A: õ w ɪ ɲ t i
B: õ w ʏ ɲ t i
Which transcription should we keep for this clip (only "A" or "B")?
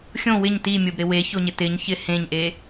A